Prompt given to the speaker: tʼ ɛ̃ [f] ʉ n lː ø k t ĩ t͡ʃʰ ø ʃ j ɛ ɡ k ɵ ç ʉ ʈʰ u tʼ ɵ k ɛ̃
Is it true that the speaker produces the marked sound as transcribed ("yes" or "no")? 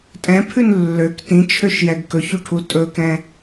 no